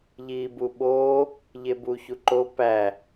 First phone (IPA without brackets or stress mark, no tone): ʎ